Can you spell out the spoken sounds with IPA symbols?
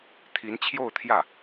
t̪ʰ i˧˥ n t͡ɕʰ j o˥˧ ʊ̯ t̪ʰ j ä˥˩

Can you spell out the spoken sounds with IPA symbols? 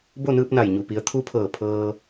b o˥˨ n ɯː˧ p̚ n a˧˩ j ɲ u˩ p i˩˧ ə̯ t̪ʰ u˧˥ pʰ ɤː˧˩ pʰ ɤː˧

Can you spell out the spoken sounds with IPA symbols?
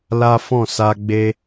l a˦ f ɔ̃˦˨ s a˧ ɡ͡b e˦

